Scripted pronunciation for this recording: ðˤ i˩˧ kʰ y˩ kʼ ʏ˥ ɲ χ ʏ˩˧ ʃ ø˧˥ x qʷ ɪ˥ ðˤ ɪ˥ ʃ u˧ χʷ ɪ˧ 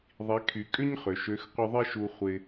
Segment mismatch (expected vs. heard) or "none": none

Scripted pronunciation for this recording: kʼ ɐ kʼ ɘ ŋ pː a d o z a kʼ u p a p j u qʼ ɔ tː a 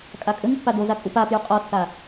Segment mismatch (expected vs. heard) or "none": ɐ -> a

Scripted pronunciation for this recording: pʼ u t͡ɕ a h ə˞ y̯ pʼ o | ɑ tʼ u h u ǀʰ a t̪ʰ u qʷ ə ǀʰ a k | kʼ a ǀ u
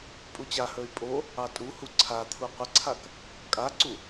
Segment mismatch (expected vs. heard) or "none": none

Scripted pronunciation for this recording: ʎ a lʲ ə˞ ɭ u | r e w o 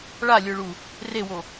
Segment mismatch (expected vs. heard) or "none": ʎ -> ɭ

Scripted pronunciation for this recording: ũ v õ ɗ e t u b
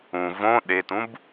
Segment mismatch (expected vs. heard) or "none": u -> ũ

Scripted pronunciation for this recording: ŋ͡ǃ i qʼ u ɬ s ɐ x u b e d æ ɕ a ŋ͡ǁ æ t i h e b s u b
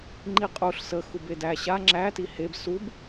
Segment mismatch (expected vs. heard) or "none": ɐ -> ə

